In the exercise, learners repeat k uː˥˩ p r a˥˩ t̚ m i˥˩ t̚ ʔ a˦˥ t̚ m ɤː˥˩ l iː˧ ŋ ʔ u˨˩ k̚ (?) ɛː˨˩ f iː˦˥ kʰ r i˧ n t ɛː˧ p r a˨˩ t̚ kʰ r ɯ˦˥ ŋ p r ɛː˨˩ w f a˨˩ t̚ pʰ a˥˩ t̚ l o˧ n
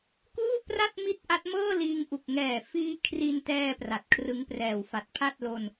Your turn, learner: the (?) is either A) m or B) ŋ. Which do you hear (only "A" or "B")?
B